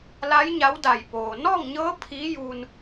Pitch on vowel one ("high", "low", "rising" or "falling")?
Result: rising